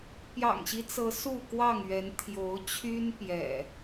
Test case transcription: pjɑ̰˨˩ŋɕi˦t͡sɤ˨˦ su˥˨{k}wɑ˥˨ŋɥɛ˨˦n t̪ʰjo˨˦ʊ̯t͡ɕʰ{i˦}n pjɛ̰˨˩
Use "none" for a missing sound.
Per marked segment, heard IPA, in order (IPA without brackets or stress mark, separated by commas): k, y˦